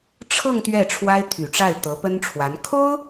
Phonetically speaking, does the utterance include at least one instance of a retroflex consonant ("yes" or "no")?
yes